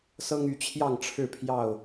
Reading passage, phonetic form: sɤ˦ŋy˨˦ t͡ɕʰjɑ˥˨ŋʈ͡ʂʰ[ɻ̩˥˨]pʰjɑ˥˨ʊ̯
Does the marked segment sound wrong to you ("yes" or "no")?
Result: no